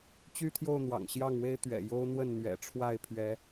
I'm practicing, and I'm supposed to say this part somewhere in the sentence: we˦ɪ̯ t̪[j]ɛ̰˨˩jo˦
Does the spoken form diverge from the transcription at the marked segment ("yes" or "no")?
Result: yes